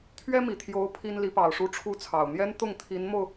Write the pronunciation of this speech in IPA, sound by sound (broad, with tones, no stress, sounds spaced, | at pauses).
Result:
t̪ʰ ɥ ɛ˥ m i˨˩ t̪ʰ j o˧˥ ʊ̯ pʰ i˥ n l i˧˥ p ɑ˨˩ ʊ̯ ʂ u˥ ʈ͡ʂʰ u˥ t͡sʰ ɑ˨˩ ʊ̯ n̪ j ɛ˥ n t̪ ʊ˥˩ ŋ t̪ʰ i˧˥ n m o˧ ʊ̯